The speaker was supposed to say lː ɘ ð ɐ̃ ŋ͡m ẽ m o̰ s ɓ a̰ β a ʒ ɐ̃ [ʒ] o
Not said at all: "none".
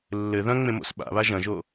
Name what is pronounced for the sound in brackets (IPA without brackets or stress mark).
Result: ʒ